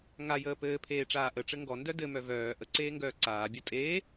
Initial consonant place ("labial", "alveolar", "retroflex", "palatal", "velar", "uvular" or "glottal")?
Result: velar